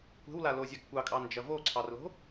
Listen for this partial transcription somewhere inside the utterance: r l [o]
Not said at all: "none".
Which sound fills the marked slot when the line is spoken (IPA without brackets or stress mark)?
o̤